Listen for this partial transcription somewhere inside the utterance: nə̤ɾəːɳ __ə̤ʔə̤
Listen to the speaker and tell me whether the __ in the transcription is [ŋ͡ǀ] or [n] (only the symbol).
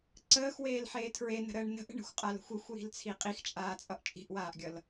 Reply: n